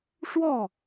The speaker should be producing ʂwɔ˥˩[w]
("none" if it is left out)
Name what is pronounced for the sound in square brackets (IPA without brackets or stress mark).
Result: none